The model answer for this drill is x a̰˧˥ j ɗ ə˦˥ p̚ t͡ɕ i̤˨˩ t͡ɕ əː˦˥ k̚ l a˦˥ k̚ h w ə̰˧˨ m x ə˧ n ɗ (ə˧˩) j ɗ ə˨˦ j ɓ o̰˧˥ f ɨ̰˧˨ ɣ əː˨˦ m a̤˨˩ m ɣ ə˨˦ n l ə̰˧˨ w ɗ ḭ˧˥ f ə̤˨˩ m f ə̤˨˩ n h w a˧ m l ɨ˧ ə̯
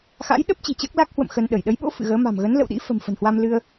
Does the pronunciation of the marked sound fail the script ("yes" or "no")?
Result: no